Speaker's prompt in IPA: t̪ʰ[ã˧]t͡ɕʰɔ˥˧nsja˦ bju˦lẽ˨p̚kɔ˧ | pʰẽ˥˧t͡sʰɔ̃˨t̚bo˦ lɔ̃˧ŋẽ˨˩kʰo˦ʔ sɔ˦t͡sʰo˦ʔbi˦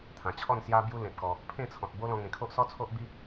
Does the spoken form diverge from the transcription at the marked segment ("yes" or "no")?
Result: yes